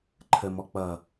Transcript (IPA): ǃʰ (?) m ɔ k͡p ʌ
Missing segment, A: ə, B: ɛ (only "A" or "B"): A